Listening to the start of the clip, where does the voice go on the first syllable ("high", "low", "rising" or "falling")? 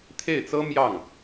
falling